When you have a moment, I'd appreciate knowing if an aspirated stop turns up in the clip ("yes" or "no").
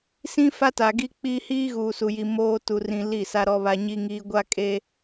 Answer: no